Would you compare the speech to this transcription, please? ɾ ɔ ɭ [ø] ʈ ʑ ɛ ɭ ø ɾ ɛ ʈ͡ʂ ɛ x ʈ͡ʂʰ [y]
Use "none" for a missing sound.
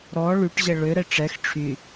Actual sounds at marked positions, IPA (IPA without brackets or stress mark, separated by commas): y, y